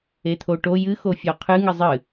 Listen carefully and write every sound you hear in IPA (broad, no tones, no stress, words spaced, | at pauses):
et̪ʰoʈo jɨ xofʲɔqʰɨ ŋɨzˤɨ